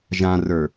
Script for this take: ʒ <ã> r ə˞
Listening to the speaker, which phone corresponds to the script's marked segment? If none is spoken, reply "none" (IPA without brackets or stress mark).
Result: ã